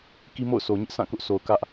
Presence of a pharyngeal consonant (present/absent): absent